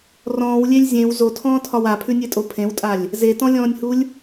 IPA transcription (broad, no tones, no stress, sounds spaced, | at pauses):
r ɔ̃ː w lʲ e lʲ zʲ ẽ w z o tʰ ɔ̃ː tʰ ɒ w a pʰ ʉ nʲ e tʼ o pʰ ẽ w tʼ a lʲ | z e t ɔ̃ lʲ ɔ̃ː nʲ h u lʲ